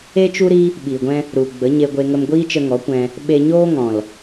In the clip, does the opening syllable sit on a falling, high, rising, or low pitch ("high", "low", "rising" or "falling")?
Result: high